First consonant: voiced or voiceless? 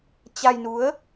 voiceless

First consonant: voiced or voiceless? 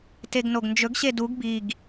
voiceless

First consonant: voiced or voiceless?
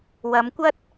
voiced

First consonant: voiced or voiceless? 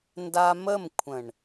voiced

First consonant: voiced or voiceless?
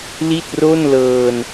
voiced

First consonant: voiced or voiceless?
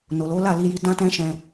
voiced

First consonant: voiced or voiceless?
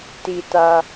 voiceless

